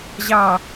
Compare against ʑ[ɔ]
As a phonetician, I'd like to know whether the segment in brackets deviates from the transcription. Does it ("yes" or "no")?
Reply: yes